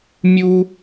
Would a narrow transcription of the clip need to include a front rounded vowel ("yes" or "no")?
no